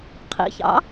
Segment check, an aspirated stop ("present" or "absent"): present